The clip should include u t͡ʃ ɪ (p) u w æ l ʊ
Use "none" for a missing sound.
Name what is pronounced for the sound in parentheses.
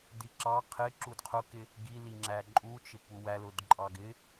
p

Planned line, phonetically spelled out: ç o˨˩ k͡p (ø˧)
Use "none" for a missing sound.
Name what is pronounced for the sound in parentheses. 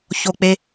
e˧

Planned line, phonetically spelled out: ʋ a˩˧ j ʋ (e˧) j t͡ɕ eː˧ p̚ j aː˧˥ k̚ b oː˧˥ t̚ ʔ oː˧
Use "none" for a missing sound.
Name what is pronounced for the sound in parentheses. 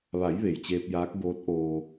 e˩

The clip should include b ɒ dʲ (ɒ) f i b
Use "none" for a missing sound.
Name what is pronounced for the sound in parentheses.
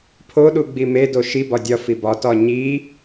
ɒ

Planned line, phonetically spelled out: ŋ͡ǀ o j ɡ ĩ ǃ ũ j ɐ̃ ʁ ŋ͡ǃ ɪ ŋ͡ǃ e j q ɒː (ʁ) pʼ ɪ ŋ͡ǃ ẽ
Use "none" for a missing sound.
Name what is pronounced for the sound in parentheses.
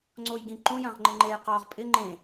ʁ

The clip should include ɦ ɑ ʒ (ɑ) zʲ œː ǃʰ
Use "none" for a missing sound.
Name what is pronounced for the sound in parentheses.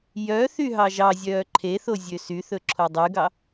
ɑ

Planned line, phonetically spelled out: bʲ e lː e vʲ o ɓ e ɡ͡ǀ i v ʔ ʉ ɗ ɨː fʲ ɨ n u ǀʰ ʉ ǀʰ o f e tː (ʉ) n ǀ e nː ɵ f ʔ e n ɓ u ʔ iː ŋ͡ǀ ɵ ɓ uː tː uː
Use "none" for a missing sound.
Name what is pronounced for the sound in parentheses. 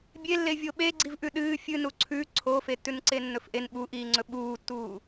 ʉ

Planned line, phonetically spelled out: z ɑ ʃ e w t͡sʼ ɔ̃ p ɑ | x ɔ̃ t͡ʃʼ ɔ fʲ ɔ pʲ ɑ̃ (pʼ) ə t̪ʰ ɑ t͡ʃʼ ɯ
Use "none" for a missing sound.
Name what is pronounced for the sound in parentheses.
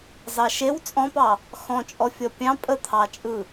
pʼ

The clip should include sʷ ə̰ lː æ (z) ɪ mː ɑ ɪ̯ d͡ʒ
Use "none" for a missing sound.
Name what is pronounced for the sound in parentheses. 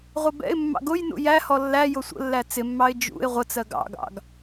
t͡s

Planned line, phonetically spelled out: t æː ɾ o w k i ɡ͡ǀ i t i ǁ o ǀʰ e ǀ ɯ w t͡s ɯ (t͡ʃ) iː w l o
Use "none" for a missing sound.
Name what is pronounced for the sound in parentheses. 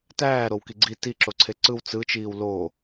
t͡ʃ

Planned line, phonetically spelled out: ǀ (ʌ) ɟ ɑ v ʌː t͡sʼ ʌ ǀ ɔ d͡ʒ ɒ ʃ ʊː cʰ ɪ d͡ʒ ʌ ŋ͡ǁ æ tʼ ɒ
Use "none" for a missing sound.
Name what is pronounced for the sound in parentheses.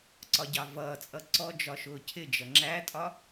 ɒ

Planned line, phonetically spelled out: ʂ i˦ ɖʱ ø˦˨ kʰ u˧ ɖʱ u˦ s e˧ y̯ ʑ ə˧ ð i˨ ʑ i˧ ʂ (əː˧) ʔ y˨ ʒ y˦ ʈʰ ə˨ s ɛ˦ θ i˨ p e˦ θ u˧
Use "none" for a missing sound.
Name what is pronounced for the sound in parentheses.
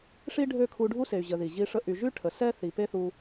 ə˧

